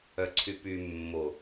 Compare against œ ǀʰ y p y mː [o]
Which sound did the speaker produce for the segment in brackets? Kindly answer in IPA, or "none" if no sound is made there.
o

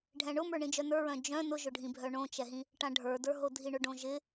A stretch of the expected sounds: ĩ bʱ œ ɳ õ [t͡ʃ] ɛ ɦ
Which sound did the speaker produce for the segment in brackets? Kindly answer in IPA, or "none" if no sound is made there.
t͡ʃ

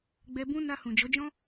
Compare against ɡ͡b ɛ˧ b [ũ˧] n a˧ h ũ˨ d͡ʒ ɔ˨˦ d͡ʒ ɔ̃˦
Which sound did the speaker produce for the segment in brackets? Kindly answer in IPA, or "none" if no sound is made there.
ũ˦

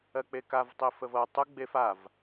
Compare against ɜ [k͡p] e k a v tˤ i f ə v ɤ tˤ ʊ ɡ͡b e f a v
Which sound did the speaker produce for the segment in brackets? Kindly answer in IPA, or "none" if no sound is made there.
k͡p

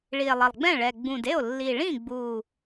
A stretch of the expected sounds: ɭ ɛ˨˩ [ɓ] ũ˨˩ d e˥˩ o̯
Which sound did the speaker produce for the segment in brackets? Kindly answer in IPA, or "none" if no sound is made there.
ɡ͡b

